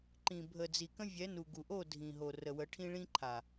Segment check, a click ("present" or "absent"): present